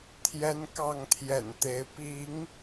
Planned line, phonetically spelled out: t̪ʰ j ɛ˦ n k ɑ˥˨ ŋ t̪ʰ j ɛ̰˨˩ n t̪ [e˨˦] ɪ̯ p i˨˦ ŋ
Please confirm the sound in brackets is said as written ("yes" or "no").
yes